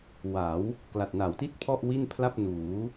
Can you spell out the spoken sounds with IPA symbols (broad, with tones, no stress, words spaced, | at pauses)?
wa˩˦w | kla˨˩t̚na˩˦wti˥˩t̚ pʰɔ˥˩ʔwi˥˩npʰla˥˩p̚ nuː˩˦